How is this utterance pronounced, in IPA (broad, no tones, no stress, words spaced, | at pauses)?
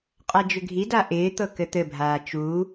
qʼad͡ʒʏɡʱida ʔɪːt̪ɤ kɘt̪ɘbʱaː t͡ʃu